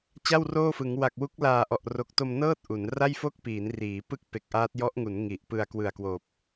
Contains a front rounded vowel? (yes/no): no